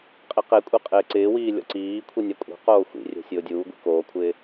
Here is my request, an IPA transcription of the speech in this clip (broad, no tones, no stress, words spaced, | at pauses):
qʼiqekʷʼe qʼɪːǀɪːwiː lʲɔ̰ǀiːkʷʰi nʲakʷʼe̤qoː xʷḭrʲɛ̤ sʲʊːdʲuːɡʷḭ koːkʷʰɪː